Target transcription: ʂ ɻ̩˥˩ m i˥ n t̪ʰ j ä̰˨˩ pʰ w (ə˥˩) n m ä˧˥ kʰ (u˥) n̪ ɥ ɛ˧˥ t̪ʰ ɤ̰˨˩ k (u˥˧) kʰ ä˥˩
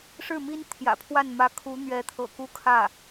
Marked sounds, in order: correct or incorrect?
incorrect, incorrect, correct

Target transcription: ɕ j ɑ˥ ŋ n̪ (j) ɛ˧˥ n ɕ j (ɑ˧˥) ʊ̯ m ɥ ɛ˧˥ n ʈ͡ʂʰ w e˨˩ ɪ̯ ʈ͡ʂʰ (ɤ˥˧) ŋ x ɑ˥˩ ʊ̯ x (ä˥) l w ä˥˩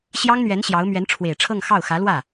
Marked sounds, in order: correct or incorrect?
incorrect, correct, correct, incorrect

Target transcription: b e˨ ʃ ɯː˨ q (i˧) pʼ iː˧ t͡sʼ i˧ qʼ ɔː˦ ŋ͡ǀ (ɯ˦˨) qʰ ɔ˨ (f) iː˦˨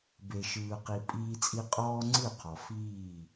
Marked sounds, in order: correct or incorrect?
incorrect, correct, correct

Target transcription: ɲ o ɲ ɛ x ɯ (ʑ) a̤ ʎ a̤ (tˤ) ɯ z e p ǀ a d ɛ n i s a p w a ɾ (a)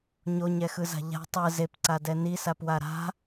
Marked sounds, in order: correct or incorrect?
incorrect, correct, incorrect

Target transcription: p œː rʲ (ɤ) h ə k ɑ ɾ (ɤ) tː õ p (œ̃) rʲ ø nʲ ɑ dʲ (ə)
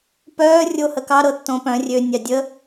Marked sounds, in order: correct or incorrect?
incorrect, correct, correct, correct

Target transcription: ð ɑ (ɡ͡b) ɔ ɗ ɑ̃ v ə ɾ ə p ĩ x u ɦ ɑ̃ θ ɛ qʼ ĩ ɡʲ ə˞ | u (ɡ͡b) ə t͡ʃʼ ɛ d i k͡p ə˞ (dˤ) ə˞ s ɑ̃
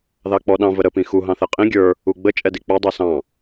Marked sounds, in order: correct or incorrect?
incorrect, correct, correct

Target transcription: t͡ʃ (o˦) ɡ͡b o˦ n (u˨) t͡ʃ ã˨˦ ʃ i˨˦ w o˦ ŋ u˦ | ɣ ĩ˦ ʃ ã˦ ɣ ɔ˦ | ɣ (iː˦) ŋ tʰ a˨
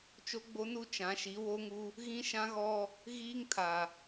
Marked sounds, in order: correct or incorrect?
correct, incorrect, correct

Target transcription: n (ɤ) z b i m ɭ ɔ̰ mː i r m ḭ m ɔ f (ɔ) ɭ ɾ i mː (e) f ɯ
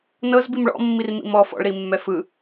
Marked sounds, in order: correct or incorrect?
correct, incorrect, incorrect

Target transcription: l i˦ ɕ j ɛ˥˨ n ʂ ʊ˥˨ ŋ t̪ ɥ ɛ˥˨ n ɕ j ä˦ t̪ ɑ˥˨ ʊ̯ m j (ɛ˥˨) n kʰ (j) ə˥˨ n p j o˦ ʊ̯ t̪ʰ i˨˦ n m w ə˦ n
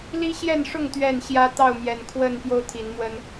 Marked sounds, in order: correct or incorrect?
incorrect, incorrect

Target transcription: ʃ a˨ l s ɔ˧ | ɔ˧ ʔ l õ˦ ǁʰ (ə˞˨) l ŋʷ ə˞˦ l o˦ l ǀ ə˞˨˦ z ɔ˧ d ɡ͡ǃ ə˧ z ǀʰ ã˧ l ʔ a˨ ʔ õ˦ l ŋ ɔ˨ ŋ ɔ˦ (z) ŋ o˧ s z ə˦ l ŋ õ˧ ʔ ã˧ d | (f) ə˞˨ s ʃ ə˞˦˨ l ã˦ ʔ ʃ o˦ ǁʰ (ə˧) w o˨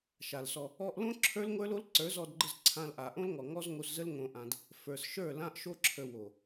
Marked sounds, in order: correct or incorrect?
incorrect, correct, correct, correct

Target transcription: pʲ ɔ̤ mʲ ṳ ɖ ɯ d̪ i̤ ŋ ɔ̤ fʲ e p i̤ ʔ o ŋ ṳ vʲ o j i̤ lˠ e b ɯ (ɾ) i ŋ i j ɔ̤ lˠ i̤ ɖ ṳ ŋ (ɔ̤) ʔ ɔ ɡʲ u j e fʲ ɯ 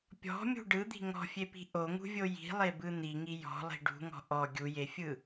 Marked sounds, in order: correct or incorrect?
incorrect, correct

